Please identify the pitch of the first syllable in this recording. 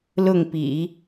falling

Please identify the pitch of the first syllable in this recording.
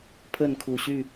falling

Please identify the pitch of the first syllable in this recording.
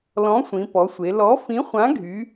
rising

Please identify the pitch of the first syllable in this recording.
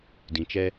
low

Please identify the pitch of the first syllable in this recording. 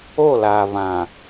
falling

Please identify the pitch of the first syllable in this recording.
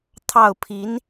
falling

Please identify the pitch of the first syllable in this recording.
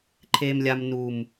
low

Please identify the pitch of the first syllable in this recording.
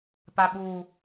low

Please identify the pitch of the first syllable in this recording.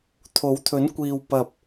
rising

